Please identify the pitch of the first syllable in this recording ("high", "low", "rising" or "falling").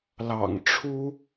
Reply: low